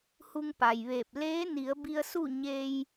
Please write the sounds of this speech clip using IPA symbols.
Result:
h u˧ ŋ p a˩ j ʋ eː˧˩ p̚ l eː˧˥ n i˩˧ ə̯ b i˧ ə̯ s u˥˨ ɲ e˧ j

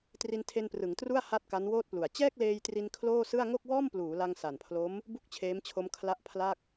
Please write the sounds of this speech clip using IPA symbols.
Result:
t r i˧ n tʰ e˧ n p r ɯ˩˦ ŋ t r u˥˩ a̯ h a˥˩ t̚ k a˦˥ n w oː˥˩ t̚ p l u˨˩ a̯ t͡ɕ ɛː˥˩ k̚ l eː˧ j t r i˧ n kʰ l oː˥˩ s ɯ˥˩ a̯ ŋ o˥˩ k̚ w ɔː˥˩ m p l uː˩˦ l a˧ ŋ s a˨˩ n pʰ l o˦˥ m | b u˥˩ k̚ t͡ɕʰ eː˦˥ m t͡ɕʰ o˦˥ m kʰ l a˦˥ ʔ pʰ l a˥˩ k̚

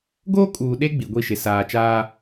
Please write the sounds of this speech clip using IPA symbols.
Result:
ɡ oː˦ kʼ uː˨ ɗ e˦ ɡ͡b i˨ ɡʷ i˦˨ ʃ ɪ˨ s aː˨ t͡ʃ aː˦

